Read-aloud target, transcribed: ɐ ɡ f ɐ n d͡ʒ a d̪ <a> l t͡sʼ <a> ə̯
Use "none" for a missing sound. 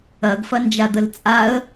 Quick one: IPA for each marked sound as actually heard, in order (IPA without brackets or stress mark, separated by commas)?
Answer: ə, a